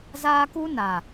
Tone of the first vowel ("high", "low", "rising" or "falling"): high